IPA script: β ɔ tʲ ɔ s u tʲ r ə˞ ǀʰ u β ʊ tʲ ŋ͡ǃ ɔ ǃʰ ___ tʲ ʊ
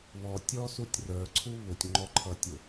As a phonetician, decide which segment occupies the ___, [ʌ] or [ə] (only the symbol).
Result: ʌ